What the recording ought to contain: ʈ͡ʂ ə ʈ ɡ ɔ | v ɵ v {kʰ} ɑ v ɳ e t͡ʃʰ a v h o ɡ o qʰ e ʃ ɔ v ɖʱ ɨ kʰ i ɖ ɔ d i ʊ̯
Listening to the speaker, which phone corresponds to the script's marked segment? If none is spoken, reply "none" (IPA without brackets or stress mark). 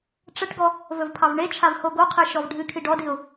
pʰ